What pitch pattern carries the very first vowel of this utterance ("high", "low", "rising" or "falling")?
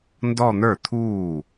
falling